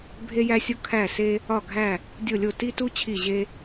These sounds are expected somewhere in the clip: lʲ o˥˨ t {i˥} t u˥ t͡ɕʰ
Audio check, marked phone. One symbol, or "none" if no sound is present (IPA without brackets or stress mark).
i˥